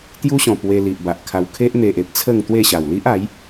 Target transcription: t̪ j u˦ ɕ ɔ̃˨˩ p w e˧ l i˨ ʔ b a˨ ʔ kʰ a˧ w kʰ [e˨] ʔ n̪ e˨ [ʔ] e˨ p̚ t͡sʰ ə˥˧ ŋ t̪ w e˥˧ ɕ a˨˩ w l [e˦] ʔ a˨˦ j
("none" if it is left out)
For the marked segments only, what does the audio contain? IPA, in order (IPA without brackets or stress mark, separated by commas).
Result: e˦, ʔ, i˦